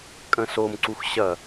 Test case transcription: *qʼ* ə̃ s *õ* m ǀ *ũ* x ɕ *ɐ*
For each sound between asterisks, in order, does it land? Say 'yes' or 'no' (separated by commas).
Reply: no, no, no, yes